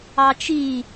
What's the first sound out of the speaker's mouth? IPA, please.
ɑ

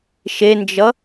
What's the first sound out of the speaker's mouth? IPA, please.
ʃ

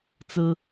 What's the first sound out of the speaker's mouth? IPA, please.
t͡s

